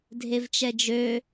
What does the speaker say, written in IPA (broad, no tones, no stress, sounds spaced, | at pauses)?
dʱ e v t͡ʃ ɛ d͡ʒ ø